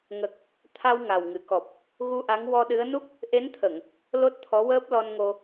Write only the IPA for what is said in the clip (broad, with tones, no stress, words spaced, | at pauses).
ŋə˨˩k̚ | t̪ʰa˧w ŋa˨˩wŋɨ˨˩˨kɔ˨˩p̚ | ɣu˧ʔa˧˥ŋ wɔ˧ɗɨ˧˥ə̯ nu˦˥k̚ | ʔe˧˥nt̪ʰə˨˩˨ŋ | lo˦˥t̚t̪ʰɔ˧˥wəː˦˥p̚lɔ˧n ŋo˧